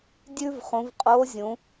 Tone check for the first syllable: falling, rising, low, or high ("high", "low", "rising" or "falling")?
high